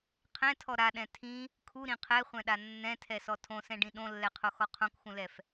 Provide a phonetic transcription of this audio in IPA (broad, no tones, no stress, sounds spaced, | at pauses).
qʰ ɛ̃ tʰ ɔ ɾ a ɗ ɛ̃ tʰ ĩ | kʰ u ɾ ĩ qʰ ɛ χʷ ɛ̃ ɗ a nː ɛ̃ tʰ ɛ s ɔ tʰ õ s ɛ̃ ɖ ĩ ɗ õ lː ɛ qʰ o x ɔ qʰ õ k x ũ l ɛ f